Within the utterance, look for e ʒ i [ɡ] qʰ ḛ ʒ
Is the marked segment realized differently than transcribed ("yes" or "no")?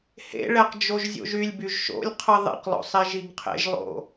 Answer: no